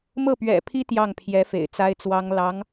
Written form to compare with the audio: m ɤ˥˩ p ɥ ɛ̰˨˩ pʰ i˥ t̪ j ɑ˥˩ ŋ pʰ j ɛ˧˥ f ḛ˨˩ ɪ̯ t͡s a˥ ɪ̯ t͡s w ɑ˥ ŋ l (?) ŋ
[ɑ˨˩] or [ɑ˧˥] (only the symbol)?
ɑ˧˥